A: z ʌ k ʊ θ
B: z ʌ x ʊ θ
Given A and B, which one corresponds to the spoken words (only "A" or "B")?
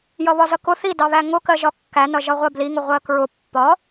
A